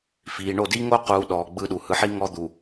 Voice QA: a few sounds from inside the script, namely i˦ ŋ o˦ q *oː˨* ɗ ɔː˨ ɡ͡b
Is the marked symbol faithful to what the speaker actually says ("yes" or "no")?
no